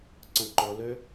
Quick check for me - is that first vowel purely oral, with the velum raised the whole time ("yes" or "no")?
no